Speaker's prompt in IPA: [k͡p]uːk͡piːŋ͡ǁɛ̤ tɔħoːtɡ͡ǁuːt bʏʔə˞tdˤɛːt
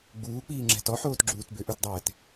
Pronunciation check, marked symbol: incorrect: ɡ͡b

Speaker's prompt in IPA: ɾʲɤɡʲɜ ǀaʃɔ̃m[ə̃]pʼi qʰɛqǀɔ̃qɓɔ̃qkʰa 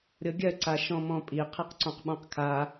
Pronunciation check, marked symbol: incorrect: ɔ̃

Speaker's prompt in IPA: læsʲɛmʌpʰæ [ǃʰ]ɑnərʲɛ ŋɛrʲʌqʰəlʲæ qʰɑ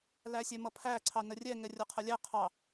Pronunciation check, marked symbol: incorrect: ǀʰ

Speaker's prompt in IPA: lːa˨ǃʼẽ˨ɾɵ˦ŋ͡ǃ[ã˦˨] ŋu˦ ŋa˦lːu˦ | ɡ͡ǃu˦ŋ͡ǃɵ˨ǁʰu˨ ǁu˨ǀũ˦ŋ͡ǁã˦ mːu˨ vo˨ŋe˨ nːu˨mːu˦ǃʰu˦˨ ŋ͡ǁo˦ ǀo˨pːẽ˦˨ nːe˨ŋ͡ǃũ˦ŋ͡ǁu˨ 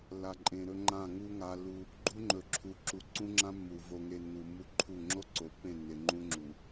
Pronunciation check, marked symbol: correct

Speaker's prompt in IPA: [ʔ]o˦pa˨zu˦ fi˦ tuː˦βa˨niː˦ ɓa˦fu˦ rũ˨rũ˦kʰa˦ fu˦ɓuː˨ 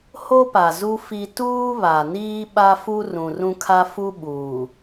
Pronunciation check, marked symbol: incorrect: h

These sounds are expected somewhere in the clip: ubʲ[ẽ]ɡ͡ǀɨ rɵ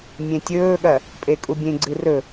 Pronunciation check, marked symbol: correct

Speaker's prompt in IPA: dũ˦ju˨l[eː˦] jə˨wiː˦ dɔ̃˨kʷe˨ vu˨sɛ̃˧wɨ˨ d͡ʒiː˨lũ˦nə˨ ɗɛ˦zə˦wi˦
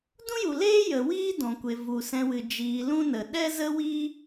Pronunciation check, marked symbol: correct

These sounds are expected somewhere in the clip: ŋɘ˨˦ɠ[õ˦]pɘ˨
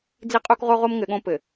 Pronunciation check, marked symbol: correct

